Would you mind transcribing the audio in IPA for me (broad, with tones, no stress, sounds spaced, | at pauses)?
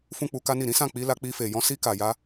f ũ˦ k͡p u˧ k a˦ n i˦˨ ɾ ĩ˨˦ s ã˦˨ k͡p i˧ l a˧ k͡p i˧ f e˨ j ɔ̃˧ s i˧ k a˨ j a˧